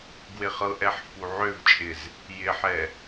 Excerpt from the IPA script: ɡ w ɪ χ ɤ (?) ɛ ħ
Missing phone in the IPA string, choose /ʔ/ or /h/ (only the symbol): ʔ